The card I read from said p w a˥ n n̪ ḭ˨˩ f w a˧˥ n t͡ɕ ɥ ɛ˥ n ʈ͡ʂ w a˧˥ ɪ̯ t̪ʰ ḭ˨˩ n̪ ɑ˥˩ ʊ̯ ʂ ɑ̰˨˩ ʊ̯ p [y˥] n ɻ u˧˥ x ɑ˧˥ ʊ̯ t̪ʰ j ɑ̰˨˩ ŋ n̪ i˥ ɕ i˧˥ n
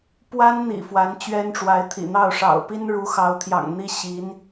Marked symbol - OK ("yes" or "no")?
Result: no